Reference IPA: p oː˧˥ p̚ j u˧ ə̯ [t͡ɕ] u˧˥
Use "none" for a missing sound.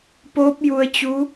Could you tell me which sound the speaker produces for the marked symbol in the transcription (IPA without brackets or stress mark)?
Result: t͡ɕ